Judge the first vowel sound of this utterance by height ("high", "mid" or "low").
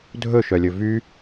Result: mid